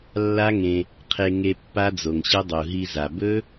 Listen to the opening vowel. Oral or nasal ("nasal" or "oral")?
oral